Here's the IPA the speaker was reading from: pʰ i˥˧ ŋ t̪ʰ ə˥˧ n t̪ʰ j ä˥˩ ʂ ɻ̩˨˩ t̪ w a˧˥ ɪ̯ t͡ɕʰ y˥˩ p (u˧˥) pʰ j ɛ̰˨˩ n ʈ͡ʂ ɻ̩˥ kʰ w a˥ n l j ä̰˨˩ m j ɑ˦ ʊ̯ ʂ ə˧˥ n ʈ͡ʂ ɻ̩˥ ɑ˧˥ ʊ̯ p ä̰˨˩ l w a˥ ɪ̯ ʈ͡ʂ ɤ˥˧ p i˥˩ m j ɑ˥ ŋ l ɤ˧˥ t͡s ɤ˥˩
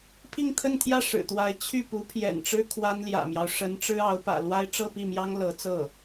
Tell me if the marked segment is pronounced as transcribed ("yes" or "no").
yes